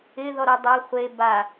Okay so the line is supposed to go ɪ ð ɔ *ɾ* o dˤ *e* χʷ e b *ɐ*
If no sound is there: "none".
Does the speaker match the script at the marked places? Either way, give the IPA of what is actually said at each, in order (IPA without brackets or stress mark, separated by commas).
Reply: ɾ, e, a